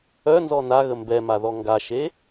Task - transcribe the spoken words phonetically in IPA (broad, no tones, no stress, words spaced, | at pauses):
œnzɔ naɣə mbɛmaðɔ ŋɡaʃe